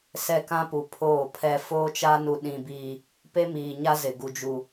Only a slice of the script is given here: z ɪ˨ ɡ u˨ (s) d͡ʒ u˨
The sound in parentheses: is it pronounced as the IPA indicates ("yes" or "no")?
no